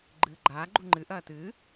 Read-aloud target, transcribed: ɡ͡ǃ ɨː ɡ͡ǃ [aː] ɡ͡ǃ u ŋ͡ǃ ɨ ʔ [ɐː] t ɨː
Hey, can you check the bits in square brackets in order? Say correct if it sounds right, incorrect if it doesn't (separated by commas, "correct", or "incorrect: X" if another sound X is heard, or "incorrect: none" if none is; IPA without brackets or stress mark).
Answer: correct, correct